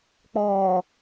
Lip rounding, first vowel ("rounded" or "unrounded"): rounded